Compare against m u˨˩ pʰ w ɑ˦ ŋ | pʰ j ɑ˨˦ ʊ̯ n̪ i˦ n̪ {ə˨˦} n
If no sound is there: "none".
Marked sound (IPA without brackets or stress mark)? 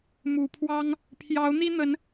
ə˨˦